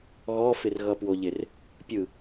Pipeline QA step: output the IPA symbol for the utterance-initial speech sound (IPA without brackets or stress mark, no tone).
ɣ